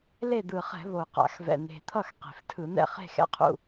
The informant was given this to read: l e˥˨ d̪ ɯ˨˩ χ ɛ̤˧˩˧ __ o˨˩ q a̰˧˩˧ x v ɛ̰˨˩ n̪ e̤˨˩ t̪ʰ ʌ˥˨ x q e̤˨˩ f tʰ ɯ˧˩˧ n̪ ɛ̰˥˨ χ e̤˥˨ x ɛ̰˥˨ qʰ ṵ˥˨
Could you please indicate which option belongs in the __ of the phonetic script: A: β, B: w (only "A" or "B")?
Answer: A